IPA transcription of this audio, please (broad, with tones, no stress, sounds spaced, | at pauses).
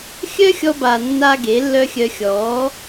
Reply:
xʲ œ˦ xʲ ɔ˧ b a˨ nː a˦ ɡ e˨˦ lː œ˦ xʲ œ˧ xʲ ɔ˨˦